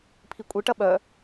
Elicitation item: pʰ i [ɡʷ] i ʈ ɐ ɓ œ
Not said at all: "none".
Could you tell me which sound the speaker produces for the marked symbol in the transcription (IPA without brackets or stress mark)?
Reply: kʷʼ